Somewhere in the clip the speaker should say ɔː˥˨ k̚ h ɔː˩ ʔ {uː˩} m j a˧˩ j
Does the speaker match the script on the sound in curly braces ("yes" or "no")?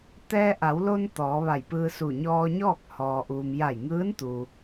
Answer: yes